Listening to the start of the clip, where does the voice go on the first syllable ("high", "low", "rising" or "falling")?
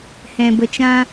low